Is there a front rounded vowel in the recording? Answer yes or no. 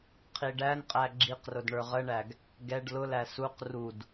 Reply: no